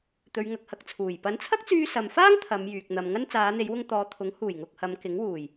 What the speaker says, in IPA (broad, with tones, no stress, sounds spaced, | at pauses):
t̪ ɵ˨˧ ɥ ŋ ɐ˨˥ k̚ h ɐ˨ k̚ t͡sʰ uː˨˩ j p ɐ˨˥ n t͡sʰ ɐ˥ k̚ t͡s yː˧ s ɐ˨ m f aː˥ ŋ t̪ʰ ɐ˨˧ m j yː˨ k̚ n̪ ɐ˨ m ŋ ɐ˥ n t͡s aː˨˧ n̪ e˨˧ j w ʊ˧ ŋ t̪ ɔː˨˧ t̪ʰ ʊ˨˥ ŋ h uː˨˩ j ŋ ʊ˨ k̚ h ɐ˨˧ m k ɪ˨˥ ŋ w uː˨˩ j